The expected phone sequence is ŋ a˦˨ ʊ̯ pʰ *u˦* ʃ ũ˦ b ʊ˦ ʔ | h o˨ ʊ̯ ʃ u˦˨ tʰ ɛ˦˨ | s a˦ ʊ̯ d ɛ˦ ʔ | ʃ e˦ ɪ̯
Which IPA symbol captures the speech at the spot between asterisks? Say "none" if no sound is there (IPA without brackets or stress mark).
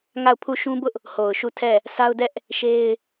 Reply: u˦˨